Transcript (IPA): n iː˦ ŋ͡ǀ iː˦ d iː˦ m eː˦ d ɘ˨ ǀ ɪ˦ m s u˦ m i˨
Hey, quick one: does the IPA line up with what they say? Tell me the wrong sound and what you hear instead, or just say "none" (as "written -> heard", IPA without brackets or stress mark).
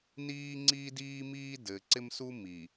eː˦ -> iː˦